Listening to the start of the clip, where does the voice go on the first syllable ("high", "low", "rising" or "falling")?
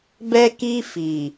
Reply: high